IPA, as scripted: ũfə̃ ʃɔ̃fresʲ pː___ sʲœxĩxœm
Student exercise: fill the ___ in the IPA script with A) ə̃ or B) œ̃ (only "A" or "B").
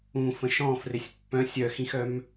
B